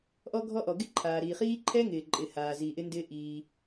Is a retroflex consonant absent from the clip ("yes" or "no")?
yes